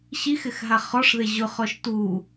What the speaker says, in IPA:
ɕix ɪxɦaχɔʂðe ʑʊχɔʃ tu

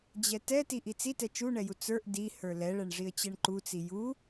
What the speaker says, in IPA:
d͡ʑɛtɛ tiʔit͡sitɛ t͡ʃuɳɛju t͡sə˞ʔ di hə˞lɛɭɛɳ ʐiə̯t͡ɕɛɳǃut͡si ju

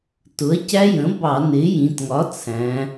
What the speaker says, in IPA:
tʊ˩˥ɐ̯cæ˦˥jə̃˩˥bɑ˧˩˧ nɪ˩˧ jĩ˩˧tŋɒ˩˥ t͡sʰæ̃˩˧

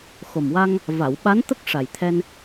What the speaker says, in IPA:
xo˨˩mwa˧ŋ | va˨˩˨wɓa˧˥n t̪ə˦˥k̚ʂa˨˩jt̪ʰɛ˧n

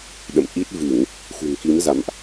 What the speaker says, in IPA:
ɗə̰˧˨mʔi˦˥t̚ vɨ˧˩˨ŋ | xṳ˨˩ŋki˨˦mza̰˧˨mʔ

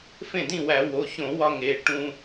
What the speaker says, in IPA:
fẽ˥˩dĩ˥˩wæ˧˩˧ wo˩˧˩çõ˧˩˧wɒ˧ ŋe˩˧˩ ʈũ˧

